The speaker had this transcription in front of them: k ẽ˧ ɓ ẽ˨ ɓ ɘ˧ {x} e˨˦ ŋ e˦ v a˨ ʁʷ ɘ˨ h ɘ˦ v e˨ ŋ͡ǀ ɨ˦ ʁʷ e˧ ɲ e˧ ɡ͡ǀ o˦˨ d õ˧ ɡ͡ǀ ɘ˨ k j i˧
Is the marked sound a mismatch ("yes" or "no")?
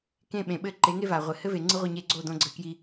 yes